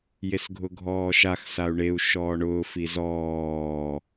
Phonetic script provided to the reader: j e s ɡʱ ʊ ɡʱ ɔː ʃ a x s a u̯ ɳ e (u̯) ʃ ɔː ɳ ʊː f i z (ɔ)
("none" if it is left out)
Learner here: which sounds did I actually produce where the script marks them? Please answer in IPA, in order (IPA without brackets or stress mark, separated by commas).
u̯, ɔː